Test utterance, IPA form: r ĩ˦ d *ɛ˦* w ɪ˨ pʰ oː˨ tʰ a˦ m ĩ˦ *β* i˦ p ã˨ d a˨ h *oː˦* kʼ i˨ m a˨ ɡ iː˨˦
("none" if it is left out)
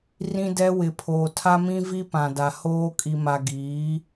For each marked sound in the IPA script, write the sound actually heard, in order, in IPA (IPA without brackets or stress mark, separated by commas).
ɛ˦, v, oː˦